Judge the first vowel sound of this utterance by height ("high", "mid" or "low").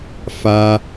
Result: low